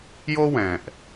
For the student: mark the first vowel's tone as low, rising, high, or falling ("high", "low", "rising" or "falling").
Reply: high